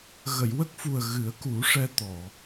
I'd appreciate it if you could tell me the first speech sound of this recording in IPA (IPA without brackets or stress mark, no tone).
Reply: ɣ